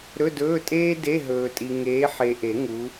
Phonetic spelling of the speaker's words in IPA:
ɾ ɵ˧˥˧ d ɵː˧˥˧ tʼ eː˥ d e˧˥˧ ɦ ɵː˨ tʼ i˨ ŋ eː˨˦ ħ e˨ ʔ e˨˩˦ ŋ u˨˦

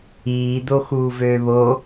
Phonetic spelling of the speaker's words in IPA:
iː d̪ o x uː v øː β o

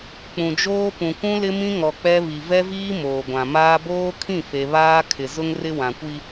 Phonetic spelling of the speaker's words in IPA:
k͡p ũ˨ d͡ʒ oː˦ p ũ˨ kʷ ũ˦ l ɪ˦ m ĩ˦ ŋ ɔ˨ k͡p ɛ˦ β i˨ v ɛ˦ v iː˦ m oː˨ ɡʷ ã˨ m aː˦ b oː˦ kʰ ĩ˦˨ f e˨ β aː˦ kʰ ɪ˨ z ʊ˦ ŋ r ɪ˦ w ã˨ kʷ i˦

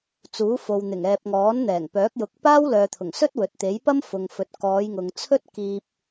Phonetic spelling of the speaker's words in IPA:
t͡s uː˨˥ f o˨ w n̪ ɪ˨˩ ŋ ɛː˨ p̚ ŋ ɔː˨˥ n n̪ ɛː˨˩ ŋ p œː˨˥ k̚ j ʊ˨˥ k̚ p aː˥ w l œː˨ t̪ʰ ʊ˨˩ ŋ s ɵ˥ t̚ w ɵ˨ t̚ t̪ e˨˥ j p ɐ˥ m f ʊ˨ ŋ f ɵ˨ t̚ k ɔː˨˧ j ŋ ʊ˨ ŋ t͡sʰ ɵ˥ t̚ k iː˧ p̚

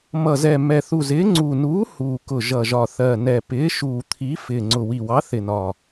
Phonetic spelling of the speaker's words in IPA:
m ʌ˨˩ z ɛ˨˩ m ɛ˨˩ θ u˨˩ z ɪː˨˥ ŋ͡ǀ uː˨˩ n uː˨˥ h uː˨˩ k ʊ˨˩ ʒ ʌ˨˩ ʒ ɒ˨˩ θ ɜ˨˩ n ɛ˨˩ p ɪː˨˥ ʃ uː˨˩ t̪ʰ i˨˥ f ɪː˨˩ ŋ͡ǀ ʊ˨˩ w i˨˩ w ɑ˨˥ θ ɪ˨˩ n ɒ˨˩

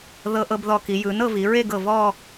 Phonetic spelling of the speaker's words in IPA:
ð ɤ˧ ʔ ɤ˧ b ð ɔ˧ k i˩˧ j ɯ˩˧ n ɤ˥˧ v i˩˧ ɹ e˥˧ ɡ ɤ˧˩ v ɔ˥˧

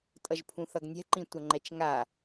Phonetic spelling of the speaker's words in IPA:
tʼ ʌ ʒ pʰ ũ θ ʌ ɡ nʲ ɛ̤ ǃ ĩ tʷ ʌ ŋ͡ǃ ɛ t͡ʃ ŋ a

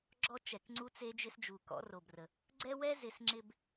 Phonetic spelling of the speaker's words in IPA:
ɡ͡ǁ ɔ˦ t͡ʃ ɛ˨ k ŋ͡ǀ u˦ t͡s e˦ d͡ʒ ɪ˦ s d͡ʒ u˨ k ɔ̰˨˦ r o˨ b r ə˨ | ɡ͡ǀ ɛ˦ w ɛ˦ z ɪ˨ s ŋ͡ǁ ɪ˨ b

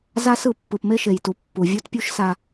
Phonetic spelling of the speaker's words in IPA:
z a˦ s ɯ˦˨ pː ɯ˨ p m e˦ ʃ e˨ j t u˨ pː u˨ vʲ u˦ t pʲ u˦ ʃ s a˨

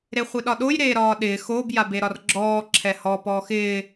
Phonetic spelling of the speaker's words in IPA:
ɾ e χʷ ɪ ɗ ɒ ɗ o j ɾ eː ɾ ɒː ɗ ɪː x o b j a b e ɾ ɒ r ɡ͡ǁ ɔː ǁʰ ɛ h ɔ p ɔː x ɪː

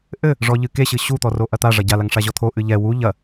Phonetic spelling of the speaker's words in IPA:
ʔ ɘ | ʐ ɔ ʎ ɨ k e ɕ ɨ ɕ u t̪ ɔ r o ʔ ɐ t̪ a ʐ ɐ ɟ a l a ŋ ʂ a ʑ ɔ t̪ʰ o ʔ ɨ ʎ ɛ w u ʎ ɐ

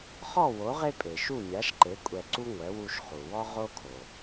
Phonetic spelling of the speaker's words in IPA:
χ ɔ˥˩ w o˩˥ ʁ e˥ pʼ e˩ ʃ u˥˩ mʲ a˩˥ ʃ ǃ e˩˥ kʷʼ ɛ˧ ǀ u˥ ŋʷ ɛ˩˥ w u˧ ʃ χ u˩ w ɔ˥ ʁ o˥ kʰ o˩

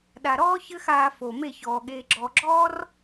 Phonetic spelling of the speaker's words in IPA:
ɗ a˨ ɾ ɔː˦ ç ɘ˦ x aː˧ f o˨ m e˦˨ ç ɔː˨ ɠ eː˧ ɡ͡ǁ ɔ˨ ɡ͡ǁ ɔː˦ r

